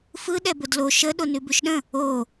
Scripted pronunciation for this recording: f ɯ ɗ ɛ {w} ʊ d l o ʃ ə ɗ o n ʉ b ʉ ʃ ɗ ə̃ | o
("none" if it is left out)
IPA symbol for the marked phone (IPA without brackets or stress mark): b